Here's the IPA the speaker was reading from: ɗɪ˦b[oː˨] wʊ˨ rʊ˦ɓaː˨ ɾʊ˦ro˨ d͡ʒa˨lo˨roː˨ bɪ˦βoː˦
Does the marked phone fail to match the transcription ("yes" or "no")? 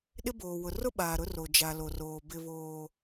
no